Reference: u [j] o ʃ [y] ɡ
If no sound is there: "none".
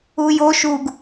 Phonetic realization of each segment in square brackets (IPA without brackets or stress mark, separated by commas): j, u